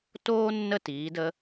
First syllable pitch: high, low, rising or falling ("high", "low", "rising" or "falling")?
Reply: high